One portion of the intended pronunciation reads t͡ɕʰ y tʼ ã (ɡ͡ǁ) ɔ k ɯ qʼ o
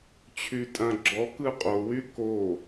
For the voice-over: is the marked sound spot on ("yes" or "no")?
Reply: yes